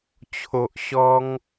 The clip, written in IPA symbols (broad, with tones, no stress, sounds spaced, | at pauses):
t͡ɕʰ o˨ ʔ ɕ ɔ˧ ŋ